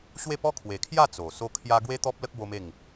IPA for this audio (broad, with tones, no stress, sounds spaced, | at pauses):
ɕ w e˥˧ p ɔ˦ kʰ w e˨˩ kʰ j a˥˧ t͡s o˨˩ s o˦ kʰ j a˦ ɡ w e˦ t̪ ɔ˦ p̚ l ə˦ k̚ b o˦ m e˥˧ ŋ